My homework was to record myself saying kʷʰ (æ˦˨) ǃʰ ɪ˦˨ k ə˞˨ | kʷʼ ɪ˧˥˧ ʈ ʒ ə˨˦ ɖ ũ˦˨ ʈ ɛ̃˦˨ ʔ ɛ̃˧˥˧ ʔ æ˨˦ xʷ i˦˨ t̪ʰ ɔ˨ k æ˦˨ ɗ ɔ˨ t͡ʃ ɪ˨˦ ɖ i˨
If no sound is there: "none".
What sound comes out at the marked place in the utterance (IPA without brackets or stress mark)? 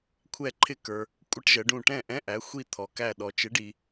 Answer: ɛ˦˨